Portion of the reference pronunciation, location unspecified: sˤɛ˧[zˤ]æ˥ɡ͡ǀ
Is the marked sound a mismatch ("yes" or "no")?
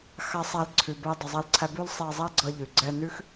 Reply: no